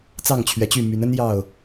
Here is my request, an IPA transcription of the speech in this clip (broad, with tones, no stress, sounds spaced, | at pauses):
t͡s ɑ˥˨ ŋ t͡ɕʰ ɥ ɛ˨˦ t͡ɕ y˥˨ m y˨˦ n ə˦ n j ɑ˥˨ ʊ̯